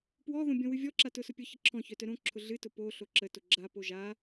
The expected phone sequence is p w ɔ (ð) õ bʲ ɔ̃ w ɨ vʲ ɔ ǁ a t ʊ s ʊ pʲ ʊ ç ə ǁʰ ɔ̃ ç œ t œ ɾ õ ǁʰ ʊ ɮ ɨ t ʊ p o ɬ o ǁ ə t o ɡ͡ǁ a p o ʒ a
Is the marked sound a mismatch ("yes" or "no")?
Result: no